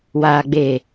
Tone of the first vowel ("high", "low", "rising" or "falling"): low